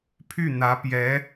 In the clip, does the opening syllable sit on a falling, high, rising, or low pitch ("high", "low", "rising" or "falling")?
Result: falling